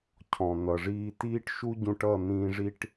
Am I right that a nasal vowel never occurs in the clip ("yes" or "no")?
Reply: no